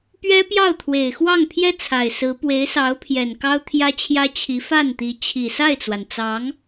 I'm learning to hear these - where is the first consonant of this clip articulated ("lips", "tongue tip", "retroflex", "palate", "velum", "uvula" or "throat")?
lips